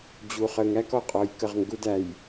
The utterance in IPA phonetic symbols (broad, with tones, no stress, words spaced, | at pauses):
d͡ʑu˨χə˨ ŋæ˦kɔ˨qʼɔ˨j kə˦˨ʁŋɡu˦dæ˨j